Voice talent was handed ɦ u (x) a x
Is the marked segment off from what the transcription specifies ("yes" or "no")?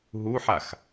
yes